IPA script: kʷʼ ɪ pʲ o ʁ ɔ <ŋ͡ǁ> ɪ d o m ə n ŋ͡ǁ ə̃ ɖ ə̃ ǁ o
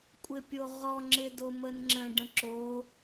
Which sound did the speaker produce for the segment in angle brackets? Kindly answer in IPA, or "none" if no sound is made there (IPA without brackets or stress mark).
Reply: ŋ͡ǁ